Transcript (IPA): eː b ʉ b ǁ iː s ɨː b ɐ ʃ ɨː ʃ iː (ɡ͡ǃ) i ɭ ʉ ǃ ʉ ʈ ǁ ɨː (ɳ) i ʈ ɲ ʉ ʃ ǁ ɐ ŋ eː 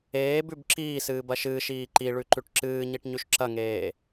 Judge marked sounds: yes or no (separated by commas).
no, no